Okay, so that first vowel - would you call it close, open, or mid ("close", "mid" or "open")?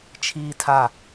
close